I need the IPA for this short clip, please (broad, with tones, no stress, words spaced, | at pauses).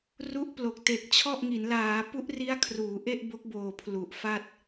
ru˦˥ʔplo˨˩k̚ te˨˩k̚t͡ɕʰɔ˥˩ʔŋi˩˦n laː˩˦pu˦˥ʔri˦˥a̯ kʰruː˩˦ʔe˥˩ʔbo˦˥k̚boː˨˩ pʰlu˨˩ʔ fa˥˩t̚